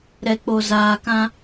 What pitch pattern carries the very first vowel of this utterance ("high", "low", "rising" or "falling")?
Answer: low